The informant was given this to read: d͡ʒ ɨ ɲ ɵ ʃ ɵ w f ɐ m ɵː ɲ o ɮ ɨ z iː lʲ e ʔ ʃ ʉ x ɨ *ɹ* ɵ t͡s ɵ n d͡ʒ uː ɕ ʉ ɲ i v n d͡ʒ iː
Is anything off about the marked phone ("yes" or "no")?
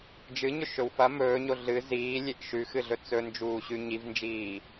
yes